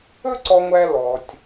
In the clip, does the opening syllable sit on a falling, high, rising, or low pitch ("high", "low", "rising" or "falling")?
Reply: high